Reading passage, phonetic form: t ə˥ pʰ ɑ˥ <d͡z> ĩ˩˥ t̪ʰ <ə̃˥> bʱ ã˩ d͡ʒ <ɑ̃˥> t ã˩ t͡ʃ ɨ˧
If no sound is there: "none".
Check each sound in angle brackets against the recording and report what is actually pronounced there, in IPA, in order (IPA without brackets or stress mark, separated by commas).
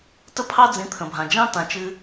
d͡z, ə̃˩, ɑ̃˥